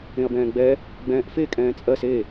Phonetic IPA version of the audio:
ẽ ɐ̯ b ɛ̃ː ɡ͡b ɛ | ɡ͡b ɛ̃ː ʔ f e kʼ ɛ̃ː t͡sʼ ɜ s e

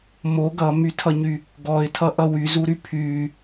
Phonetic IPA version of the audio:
m o ɡ ʌ m y tʰ ʌ ɲ y | ɡ ɔ ɪ̯ tʰ ʌ ʔ ʌ w y z u ɾ y pʰ y

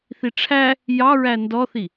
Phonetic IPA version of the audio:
θ i ʈ͡ʂʰ æ | j ɑ ɹ æ n d ɔ θ i

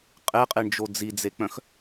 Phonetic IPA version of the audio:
qʼ e qʼ e ɳ d͡ʒ o d͡z i d͡z e k͡p œ̃ x

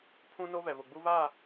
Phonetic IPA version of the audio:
pʰ ũ˦ n o˦ β ɛ˨ β ʊ˨ ɡ͡b u˦ β aː˦˨

